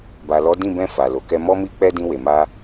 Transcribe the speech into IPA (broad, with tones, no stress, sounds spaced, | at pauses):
b a˨ l ɔ˨˦ d ĩ˦˨ b ɛ̃˧ f a˨ l o˨ k ɛ˧ m ɔ˦ m i˦ k͡p ɛ˦ d ĩ˧ w e˨ m a˧